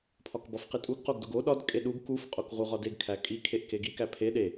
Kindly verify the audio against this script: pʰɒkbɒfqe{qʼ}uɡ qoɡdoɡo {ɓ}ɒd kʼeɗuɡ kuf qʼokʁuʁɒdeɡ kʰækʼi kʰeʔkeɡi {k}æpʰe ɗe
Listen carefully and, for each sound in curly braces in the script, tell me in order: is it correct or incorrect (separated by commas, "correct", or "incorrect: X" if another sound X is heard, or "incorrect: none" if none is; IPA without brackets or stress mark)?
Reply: incorrect: tʼ, incorrect: ɗ, correct